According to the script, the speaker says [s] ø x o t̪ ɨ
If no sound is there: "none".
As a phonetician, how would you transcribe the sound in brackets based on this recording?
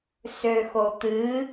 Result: s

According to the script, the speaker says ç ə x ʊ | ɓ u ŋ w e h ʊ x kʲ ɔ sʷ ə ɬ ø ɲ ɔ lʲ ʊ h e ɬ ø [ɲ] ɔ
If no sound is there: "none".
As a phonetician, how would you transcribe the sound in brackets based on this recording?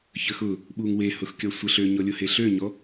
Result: ɲ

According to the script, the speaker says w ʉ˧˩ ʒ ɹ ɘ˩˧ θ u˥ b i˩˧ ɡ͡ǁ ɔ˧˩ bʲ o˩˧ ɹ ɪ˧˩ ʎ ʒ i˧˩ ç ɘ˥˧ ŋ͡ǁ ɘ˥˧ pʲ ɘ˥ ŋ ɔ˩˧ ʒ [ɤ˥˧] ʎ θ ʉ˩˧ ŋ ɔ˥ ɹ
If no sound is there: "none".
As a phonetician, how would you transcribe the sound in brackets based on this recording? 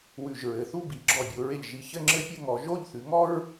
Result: o˥˧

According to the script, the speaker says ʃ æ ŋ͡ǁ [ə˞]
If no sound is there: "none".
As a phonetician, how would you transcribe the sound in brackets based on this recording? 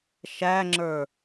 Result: ə˞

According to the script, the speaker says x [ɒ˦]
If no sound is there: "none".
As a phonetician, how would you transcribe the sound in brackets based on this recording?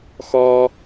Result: ɒ˦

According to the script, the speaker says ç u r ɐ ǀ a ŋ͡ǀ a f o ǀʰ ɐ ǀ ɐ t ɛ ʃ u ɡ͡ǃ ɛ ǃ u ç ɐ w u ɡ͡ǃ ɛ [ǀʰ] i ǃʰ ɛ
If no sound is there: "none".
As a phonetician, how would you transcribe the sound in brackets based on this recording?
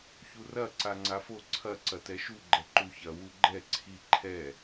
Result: ǀʰ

